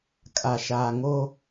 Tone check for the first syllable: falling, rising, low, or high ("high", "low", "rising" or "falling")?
low